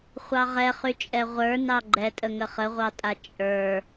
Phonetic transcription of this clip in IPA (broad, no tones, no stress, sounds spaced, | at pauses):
χʷ ɑ ʁ ɛ χ y t͡ʃʼ ɛ ʁʷ ə˞ n ɑ ɡ͡ǃ ɛ tʼ ə ŋ ə χ ə ʁʷ ɑ tʼ a t͡ʃʼ ə˞